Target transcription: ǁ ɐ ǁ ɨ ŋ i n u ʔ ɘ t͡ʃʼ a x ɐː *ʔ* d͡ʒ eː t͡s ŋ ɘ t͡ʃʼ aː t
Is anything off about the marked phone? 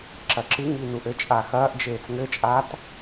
no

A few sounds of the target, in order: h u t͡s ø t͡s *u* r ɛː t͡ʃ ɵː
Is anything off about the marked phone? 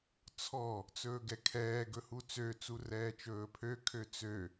no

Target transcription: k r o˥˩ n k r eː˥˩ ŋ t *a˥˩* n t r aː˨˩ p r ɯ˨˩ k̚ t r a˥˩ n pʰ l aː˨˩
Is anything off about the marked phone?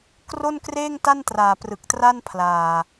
no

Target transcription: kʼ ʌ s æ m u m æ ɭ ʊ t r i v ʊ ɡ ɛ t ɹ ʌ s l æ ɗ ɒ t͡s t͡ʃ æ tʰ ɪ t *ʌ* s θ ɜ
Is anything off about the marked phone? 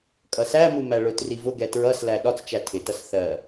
no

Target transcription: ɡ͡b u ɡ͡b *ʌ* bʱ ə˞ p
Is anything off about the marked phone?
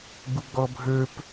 yes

